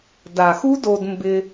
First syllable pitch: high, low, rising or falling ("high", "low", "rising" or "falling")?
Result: low